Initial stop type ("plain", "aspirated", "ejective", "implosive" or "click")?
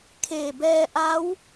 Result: aspirated